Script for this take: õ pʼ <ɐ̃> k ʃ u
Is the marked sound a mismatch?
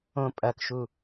yes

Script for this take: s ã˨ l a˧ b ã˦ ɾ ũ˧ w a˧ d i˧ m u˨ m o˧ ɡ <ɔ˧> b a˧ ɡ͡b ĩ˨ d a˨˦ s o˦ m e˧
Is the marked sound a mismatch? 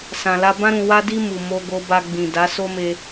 yes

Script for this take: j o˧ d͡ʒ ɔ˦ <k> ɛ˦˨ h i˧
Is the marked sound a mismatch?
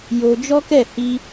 no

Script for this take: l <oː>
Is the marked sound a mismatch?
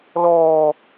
yes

